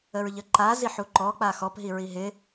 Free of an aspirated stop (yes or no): yes